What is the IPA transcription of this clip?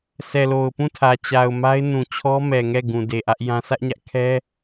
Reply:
sʰ ɛ˨ l o˨ ʊ̯ p ũ˦˨ tʰ ä˨ t͡ɕ a˨ ʊ̯ m a˦ ɪ̯ n ũ˨ t͡ɕʰ ɔ˦ m ɛ˨ ŋ ɛ˦˨ ɡ ũ˨ d e˨ ʔ ä˦ ʔ j ã˦ sʰ ä˦ ʔ ɲ ä˦ ʔ kʰ ɛ˦

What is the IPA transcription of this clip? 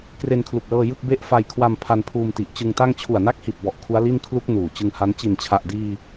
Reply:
k r e˧ n kʰ l u˨˩ k̚ l ɤː˧ j ɯ˥˩ k̚ b e˥˩ ʔ f a˧ j kʰ w a˧ m pʰ a˧ n pʰ uː˧ m t i˨˩ ʔ t͡ɕ ɯ˧ ŋ t a˥˩ ŋ t͡ɕʰ u˨˩ a̯ n a˦˥ k̚ h i˨˩ t̚ b ɔ˨˩ ʔ kʰ u˦˥ a̯ l i˥˩ n kʰ l u˦˥ k̚ n uː˨˩ t͡ɕ ɯ˧ ŋ h a˦˥ n t͡ɕ i˨˩ n t͡ɕʰ a˨˩ ʔ d iː˧

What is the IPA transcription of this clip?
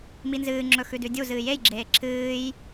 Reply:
m i n z ɨː ŋ͡ǁ ɵ x ʉ d ʉ dʲ u z ɨː j e j ɡ͡ǁ eː ǁʰ ɨː j

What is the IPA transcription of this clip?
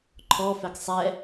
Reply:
ǃʰ ɔ f ɛ ɡ sˤ ɛ

